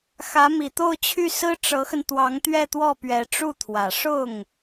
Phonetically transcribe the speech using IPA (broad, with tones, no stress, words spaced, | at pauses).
xä˧˥mi˨˩t̪o˥˧ʊ̯t͡ɕʰy˥˩ sɹ̩˥ʈ͡ʂɤ˧˥xə˧n t̪wɑ˧˥ŋt̪ɥɛ˥˧t̪wɔ˥˩pɥɛ˧˥ ʈ͡ʂu˥˩t̪ʰwä˨˩ ʂʊ˥˩ŋ